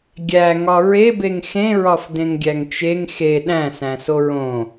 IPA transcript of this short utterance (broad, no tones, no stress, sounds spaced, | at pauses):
ɡʲ æ ŋ ɒ ɹ e b e ŋ x ẽ ɹ ɒ f d ẽ ŋ ɡʲ æ ŋ t͡ʃ e ŋ x e ɗ æ̃ s æ̃ s o ɹ õ